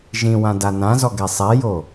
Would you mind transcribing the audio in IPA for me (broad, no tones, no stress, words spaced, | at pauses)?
ʒĩwã danãzɔɡɛ sˤɛjo